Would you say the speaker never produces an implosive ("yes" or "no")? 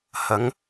yes